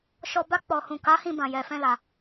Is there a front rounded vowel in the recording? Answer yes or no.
no